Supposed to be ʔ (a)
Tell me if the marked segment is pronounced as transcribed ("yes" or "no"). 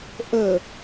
no